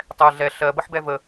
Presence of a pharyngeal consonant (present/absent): present